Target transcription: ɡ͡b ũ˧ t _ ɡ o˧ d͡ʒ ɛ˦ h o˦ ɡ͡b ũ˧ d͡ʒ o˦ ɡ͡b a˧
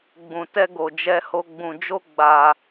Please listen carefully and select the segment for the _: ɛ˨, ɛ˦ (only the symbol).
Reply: ɛ˦